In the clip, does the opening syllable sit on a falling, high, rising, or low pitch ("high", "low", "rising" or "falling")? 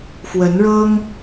rising